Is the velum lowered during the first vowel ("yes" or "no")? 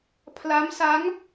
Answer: no